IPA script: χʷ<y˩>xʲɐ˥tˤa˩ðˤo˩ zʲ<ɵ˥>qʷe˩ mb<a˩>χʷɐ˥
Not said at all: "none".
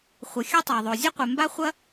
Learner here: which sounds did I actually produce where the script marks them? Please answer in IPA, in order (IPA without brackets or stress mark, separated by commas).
ɨ˩, ɵ˥, a˥